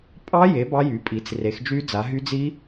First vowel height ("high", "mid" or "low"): low